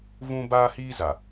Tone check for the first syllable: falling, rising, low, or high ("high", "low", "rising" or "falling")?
high